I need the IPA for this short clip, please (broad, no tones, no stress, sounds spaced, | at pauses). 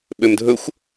ɓ ø m dʱ ɵ xʷ